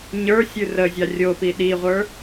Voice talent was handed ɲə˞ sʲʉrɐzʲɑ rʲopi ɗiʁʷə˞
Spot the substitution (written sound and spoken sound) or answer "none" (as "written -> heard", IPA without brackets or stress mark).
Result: ɐ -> ə